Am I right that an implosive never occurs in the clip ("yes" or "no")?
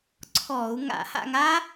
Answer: yes